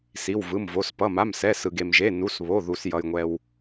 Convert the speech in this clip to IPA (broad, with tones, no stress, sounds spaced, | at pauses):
s i˩˧˩ w v ɯ˩˧˩ m v o˩˧˩ s p ʌ˩˧˩ m a˩˧˩ m s ɛ˩˧˩ s ɯ˩ ɡ e˩ m ʒ e˩˧˩ n u˩˧˩ s β o˩˧˩ ð u˩ s j ʌ˩ j ŋʷ ɛ˩ w